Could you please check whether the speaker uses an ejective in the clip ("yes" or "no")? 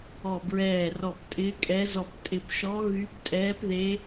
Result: yes